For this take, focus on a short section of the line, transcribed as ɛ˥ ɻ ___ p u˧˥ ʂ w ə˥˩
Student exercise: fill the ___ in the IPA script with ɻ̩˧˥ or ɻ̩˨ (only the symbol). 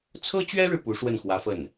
ɻ̩˨